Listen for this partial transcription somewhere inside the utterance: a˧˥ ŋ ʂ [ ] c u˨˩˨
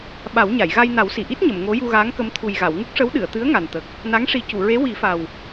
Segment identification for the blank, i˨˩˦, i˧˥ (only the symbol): i˨˩˦